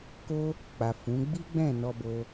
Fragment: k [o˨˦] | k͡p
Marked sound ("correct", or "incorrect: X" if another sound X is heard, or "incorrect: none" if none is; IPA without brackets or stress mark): incorrect: o˦